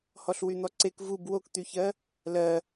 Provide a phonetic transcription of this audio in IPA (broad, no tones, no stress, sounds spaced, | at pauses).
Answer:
h ɔ ɬ w y n̪ ɔ ǀ e k v u b w o k t̪ y ç ɜ | l ɜ